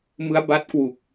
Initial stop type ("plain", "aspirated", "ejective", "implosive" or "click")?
plain